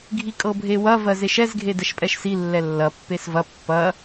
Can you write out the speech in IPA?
ɡʱikʼɤbʱewɐ vɜzeʃɛz ɡʱedɛʃpʼɛʃsi lːɛlːɐ pːesvɐ pːɐ

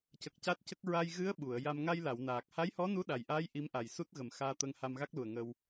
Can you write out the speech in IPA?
cə˨˩k̚ca˦˥t̚cə˦˥k̚ ɹa˧j ɣɨ˧˥ə̯ ɓu˨˩˨ə̯ ja˧m ŋa˧jla˨˩˨wnaː˨˩k̚ ha˧˥jhɔ˧˥nu˧˥ ɗa˨˩jʔaː˧˥j ʔi˧˥mʔa˨˩j su˦˥t̚ɣə˨˩mxaː˧t̪ə˧ŋ ha˧mɣa˦˥k̚lu˨˩ə̯ ŋə˧w

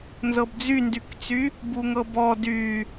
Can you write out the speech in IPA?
nzɤbd͡zyndykt͡sy | buŋɤbɔ dy

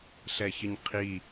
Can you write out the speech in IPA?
ɬɛçəɲqʰi

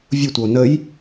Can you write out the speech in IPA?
vʲʊtʷəo̯ nəj

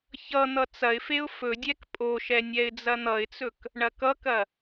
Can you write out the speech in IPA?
çʌ n̪ʌt͡sɐɪ̯feʊ̯ fɵdʲɛk pʼoʃɛ nʲɛɪ̯d͡zɐn̪ʌɪ̯t͡sɵk | ɳɐkʌkɐ

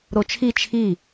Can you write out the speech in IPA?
ɾot͡ʃʰi t͡ʃʰi

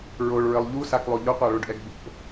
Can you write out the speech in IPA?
ɹoɭɹɘlˠ ʎusaklˠo ʎoqʷaɭoɖʔɛɡ bo̰

